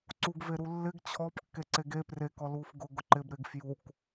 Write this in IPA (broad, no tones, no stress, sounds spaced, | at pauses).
ǀ u ɡ v e ɾ u lː ɪ ɡ t͡ɕʰ ɔ p kː e ǀ e ɡ e p r e k ɔ l uː f ɡ ʊ ɡ ʊ ǃ ɪ b ɾ ɪ ɡ f j u k